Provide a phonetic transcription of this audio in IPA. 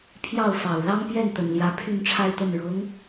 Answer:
pʰ j ɑ˥˩ ʊ̯ f ɑ˨˩ ʊ̯ l ɑ˥ ŋ p j ɛ˥˩ n t̪ ə˨˩ n l j ä˧˥ pʰ y˥˧ n ʈ͡ʂʰ a˥˧ ɪ̯ t̪ ə˥˩ n ɻ ɤ˧˥ ŋ

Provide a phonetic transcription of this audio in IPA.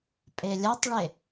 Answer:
pʼ e lʲ ɐ tˤ ɭ e

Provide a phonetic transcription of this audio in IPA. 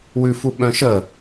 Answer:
w ʉ f u ɓ œ̃ ʃ ə

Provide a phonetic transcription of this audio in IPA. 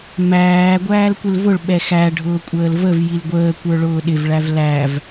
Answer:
m æː ɡʷ æː l kʷ ɪ l v ʊ ɭ ɓ ɛ x æ ɖʱ ʊː kʷʼ əː l v ə v j i l ɡʷ əː kʷ ə˞ ɭ ʊː ɗ ɪ v ɭ æ v l æ v

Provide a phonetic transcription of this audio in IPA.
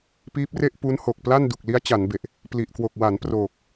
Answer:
p iː˦˥ p̚ r e˥˩ ʔ p u˦˥ n h o˨˩ k̚ p l a˥˩ n d u˨˩ k̚ l i˦˥ a̯ t͡ɕ a˩˦ n b e˨˩ ʔ | p l i˨˩ ʔ k w o˨˩ k̚ w a˩˦ n p r oː˨˩ k̚

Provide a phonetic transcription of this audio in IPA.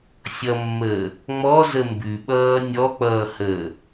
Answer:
sʲ ʌ mː əː | ŋ͡m ɔ z ə m b ʉ ɓ ʌː nʲ ɔ k͡p ʌː h əː

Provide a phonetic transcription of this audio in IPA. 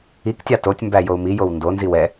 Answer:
i k tʲ ɑ t o tʲ m b æ j o u̯ m i j o w n d o n z i w ɛ

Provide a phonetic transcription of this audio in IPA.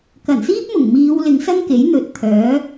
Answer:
k ɐ˨˩ n s iː˥ p̚ m ʊ˨˩ ŋ m iː˨˧ w l ɪ˨˧ ŋ s ɐ˥ ŋ k e˨˥ j n̪ ɵ˨ t̚ t̪ʰ œː˨˥

